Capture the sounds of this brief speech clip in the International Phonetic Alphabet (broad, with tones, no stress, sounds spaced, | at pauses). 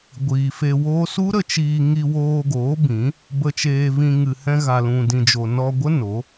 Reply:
ɡʷ iː˨ f e˧ w o˦ s u˦ ɾ ə˧ t͡ʃ iː˧ ŋ i˧ w oː˧ ɡ oː˨˦ b ĩ˨˦ | b ə˧ t͡ʃ eː˧ v ĩ˧ ŋ ɨ˨ h ɛ̃˧ ɣ a˧ l ũ˧ d ĩ˧ d͡ʒ o˧ n ɔ˧ ɡʷ ə˦ n o˨˦